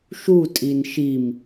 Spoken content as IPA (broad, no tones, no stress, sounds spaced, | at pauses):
ʃ u tʼ i n ʃ i m